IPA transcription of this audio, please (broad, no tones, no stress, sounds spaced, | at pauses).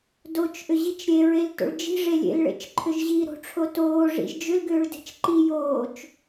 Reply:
d o t͡ʃ ʔ ʏ ʑ i t͡ʃ ɾʲ e ɹ e l t o̰ ɭ d͡ʒ i̤ ʐ e lʲ ḛ l ɭ ḛ t͡ʃ ǃʰ ʏ ʒ ʑ i ɾ o̤ ʈ͡ʂʰ o t oː ʐ ḭ ʒ d͡ʒ ʏ l ɡ ʏː ɭ d e̤ t͡ʃ ǃ i j oː t͡ʃ